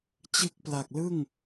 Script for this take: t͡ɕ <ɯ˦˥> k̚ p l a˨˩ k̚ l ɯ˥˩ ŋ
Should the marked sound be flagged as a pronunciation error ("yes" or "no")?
no